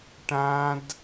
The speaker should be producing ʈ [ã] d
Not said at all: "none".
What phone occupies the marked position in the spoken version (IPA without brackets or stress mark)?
ã